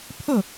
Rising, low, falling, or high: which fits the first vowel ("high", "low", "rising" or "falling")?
falling